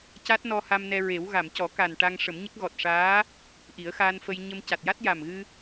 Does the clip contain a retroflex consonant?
yes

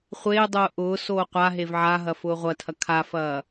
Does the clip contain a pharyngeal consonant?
yes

